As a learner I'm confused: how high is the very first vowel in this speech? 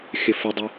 high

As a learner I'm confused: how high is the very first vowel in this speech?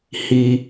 high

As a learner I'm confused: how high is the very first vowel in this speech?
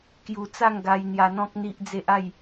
high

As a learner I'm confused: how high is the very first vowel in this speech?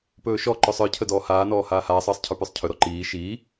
mid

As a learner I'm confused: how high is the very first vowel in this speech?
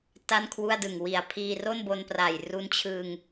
low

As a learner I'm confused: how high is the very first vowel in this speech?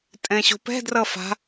mid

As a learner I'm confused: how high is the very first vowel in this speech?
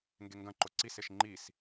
mid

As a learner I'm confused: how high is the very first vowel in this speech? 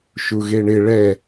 high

